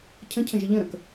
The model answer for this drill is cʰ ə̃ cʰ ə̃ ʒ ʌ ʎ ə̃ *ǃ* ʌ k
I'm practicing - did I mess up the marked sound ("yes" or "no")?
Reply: yes